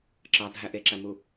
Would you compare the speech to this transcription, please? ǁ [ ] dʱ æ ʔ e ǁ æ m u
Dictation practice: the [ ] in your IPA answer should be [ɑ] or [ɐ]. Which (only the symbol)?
ɑ